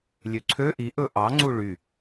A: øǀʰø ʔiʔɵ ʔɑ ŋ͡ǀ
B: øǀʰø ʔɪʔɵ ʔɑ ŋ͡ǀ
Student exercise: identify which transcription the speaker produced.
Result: A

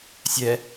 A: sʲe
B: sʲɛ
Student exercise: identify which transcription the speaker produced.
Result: B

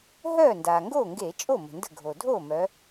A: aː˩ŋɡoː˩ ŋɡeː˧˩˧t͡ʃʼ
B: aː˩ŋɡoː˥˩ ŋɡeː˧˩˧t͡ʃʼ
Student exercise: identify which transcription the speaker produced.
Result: B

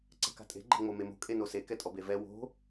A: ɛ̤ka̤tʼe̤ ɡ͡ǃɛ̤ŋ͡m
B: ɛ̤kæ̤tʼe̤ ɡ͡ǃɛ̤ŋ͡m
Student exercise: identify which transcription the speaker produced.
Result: A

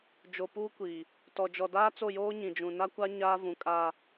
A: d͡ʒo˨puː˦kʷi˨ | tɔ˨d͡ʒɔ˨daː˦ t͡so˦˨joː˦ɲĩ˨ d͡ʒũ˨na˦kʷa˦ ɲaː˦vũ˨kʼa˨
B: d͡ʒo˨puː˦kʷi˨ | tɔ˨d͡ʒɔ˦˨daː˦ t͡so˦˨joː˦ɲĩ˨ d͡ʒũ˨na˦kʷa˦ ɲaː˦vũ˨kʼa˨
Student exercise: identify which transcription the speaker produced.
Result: A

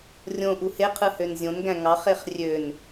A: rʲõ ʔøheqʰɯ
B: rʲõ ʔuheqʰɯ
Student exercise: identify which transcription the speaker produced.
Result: B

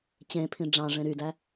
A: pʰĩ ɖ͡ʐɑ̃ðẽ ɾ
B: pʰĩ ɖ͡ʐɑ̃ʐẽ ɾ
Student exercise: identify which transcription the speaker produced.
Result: B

